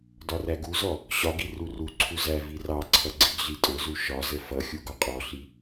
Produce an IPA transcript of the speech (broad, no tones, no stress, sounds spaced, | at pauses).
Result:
d ɒ r æ ɡ u z ɔ | ɕ ɒ ɡ i r u r u ǀʰ u z æ v i r ɑ ǀʰ ʌ ɡ͡ǀ i ɡ ɮ i tʼ ʊ z u ʃ ɒ z ə f ʌ xʲ u ɡ ɒ qʼ ɔ ɬ i